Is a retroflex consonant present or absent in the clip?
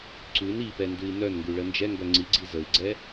present